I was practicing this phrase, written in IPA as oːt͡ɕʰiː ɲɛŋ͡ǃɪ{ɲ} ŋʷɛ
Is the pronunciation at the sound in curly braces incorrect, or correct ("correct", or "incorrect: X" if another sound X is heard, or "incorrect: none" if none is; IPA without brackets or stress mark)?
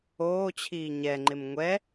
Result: incorrect: m